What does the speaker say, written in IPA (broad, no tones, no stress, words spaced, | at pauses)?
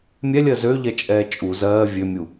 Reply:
mʲɛlʲɜ zøʎɛ t͡ʃʼɛːt͡ʃʼu zɜː vʲømʲu